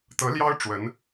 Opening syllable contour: rising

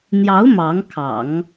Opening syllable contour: rising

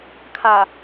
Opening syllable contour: low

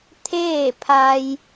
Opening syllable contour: falling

